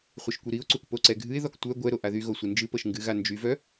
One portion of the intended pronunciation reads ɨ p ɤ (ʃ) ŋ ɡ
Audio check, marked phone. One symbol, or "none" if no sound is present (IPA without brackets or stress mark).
ʃ